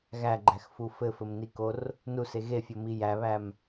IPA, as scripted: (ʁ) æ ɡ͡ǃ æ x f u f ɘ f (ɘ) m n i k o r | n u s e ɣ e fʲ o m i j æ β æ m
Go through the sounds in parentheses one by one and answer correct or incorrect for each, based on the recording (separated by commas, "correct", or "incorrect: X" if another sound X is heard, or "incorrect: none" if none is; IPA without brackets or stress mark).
incorrect: ɣ, correct